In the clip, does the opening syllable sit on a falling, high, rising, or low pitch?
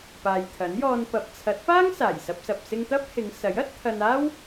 low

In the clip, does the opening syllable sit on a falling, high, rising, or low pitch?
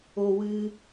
low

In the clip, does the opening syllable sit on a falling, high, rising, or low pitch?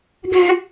high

